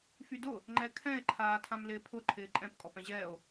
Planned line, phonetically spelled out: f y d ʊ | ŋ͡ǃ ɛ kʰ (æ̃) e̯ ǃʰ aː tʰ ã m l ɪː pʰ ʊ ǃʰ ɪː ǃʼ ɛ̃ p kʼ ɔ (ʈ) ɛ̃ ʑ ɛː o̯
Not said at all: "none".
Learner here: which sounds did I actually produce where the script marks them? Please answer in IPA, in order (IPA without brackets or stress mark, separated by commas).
ɛ̃, p